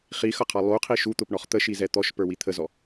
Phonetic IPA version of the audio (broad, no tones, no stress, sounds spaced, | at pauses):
χ i x ʌ qʰ ɑ lˠ u qʰ i ʃ u t̪ ʊ p ɳ ɔ χ t̪ ə ʃ i z ɛ t̪ ɔ ʃ p ə˞ w i t̪ʰ ə z ɔ